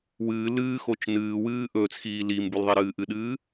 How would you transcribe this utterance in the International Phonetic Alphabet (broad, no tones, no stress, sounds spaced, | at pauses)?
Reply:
w ɨː l ɨː x o t͡ʃ n ɨː w ɨː ʔ ɵː t͡s x iː l iː m b ʉ l ðˤ i ɾ ɨː ʔ ɨ ɗ ɨː